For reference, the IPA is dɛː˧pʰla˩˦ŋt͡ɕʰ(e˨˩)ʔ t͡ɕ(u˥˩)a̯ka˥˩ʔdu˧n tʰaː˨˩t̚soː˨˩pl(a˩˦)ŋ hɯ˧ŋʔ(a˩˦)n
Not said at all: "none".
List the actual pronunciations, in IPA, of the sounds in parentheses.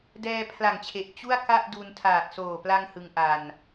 e˨˩, u˥˩, a˧, a˧

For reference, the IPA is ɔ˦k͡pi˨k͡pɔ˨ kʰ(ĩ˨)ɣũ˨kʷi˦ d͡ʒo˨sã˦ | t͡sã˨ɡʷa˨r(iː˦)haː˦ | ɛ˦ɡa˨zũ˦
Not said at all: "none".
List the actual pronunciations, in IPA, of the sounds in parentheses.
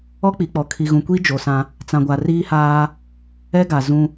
i˨, iː˦

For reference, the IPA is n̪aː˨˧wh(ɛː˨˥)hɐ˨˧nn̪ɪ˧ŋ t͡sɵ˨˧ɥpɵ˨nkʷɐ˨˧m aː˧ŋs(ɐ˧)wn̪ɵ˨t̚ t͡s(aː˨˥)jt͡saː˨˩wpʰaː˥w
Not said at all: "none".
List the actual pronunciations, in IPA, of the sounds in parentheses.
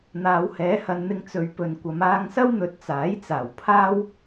ɛː˨˥, ɐ˥, aː˨˥

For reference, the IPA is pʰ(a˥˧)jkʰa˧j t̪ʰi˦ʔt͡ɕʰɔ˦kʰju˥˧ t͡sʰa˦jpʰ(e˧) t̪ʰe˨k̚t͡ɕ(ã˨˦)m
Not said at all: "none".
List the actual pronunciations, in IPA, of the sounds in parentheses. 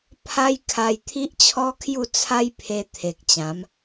a˦, e˧, ã˨˦

